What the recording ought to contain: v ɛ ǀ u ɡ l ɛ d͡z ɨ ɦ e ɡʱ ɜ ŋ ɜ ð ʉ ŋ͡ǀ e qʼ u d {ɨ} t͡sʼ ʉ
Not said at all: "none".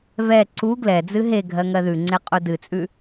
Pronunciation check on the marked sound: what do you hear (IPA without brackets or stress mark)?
ɨ